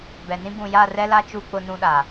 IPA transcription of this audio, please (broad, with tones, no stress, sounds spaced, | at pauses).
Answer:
b ɛ˨ n ĩ˦ b ũ˨ j a˦˨ r ɛ˦ l a˦ t͡ʃ u˦ k͡p ʊ˦ n ũ˦ ɗ a˨